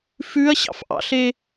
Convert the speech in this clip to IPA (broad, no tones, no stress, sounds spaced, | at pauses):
f ʉ ɐ̯ ɕ ɑ̰ f ʔ ɑ̰ ɬ e